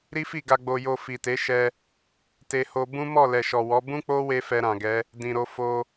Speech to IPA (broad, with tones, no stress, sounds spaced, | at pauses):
ɾ i˦ f i˦˨ ɡ a˧ ɡ͡b o˧ j o˧ f i˨ t e˨˦ ʃ ɛ˧ | t e˦ h o˦ b ũ˦ m ɔ˦˨ l ɛ˨ ʃ ɔ˨ w ɔ˨˦ b ũ˦ k͡p o˦ w e˧ f ɛ˧ ɾ ã˨ ɡ ɛ˨˦ | d ĩ˨ ɾ o˧ f o˧